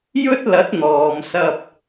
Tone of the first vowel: high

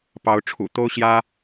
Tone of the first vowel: rising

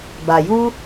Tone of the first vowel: low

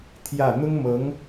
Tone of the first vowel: falling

